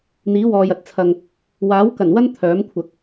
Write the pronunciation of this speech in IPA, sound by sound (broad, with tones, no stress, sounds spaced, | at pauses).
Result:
n̪ iː˨˥ w ɔː˨ j ɐ˨ t̚ t͡sʰ ɐ˨ ŋ | w aː˨˥ w k ɐ˨˩ n w ɐ˥ n t̪ʰ œː˨˥ m kʷʰ ɐ˨ k̚